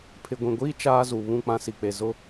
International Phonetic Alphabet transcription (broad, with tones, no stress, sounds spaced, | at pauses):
pʰ ɪ˨ ɡʷ ĩ˨ ɡʷ iː˦ t͡ʃ aː˦ z u˨ β ũ˦˨ k͡p ã˦ s i˨ k͡p e˨ z ʊ˦